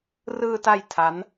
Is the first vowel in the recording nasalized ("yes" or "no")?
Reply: no